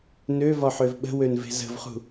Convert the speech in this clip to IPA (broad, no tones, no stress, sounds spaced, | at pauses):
n ø v ɒ ħ ø v ɓ ə̤ w ø n v e̤ z ə̤ v χ ṳ